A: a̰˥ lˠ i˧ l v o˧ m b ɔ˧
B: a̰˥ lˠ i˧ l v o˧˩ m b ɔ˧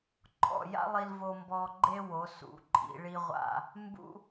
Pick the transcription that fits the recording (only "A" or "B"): A